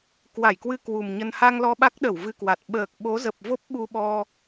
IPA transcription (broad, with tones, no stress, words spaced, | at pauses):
kwa˧˩jkwɨ˧ kwu˨˩mɲə˧n ha˧ŋ lɔ˧ɓa˦˥k̚ɗə˧˩w vɨ˧kwa˨˩t̚ ɓəː˨˩k̚ɓo˨˦zə˨˩p̚vo˦˥p̚ ɓu˧ɓɔ˧